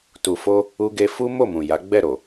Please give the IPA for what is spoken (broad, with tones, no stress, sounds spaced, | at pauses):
t u˨ f o˧ | u˦ ɡ e˧ f u˦ m o˦˨ m ũ˨ j a˨˦ ɡ͡b ɛ˦˨ ɾ o˨